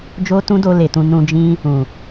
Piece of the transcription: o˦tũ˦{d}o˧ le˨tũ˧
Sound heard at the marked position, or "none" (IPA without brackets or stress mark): d